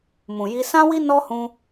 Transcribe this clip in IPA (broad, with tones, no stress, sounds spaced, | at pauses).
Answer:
m ũ˨ j i˧ s ã˦ w i˦ n ɔ˦ h ũ˧